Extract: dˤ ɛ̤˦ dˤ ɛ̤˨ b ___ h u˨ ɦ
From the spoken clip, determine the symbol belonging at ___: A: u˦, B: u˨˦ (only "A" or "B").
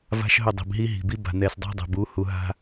B